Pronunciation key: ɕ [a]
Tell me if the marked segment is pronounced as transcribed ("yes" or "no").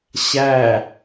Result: no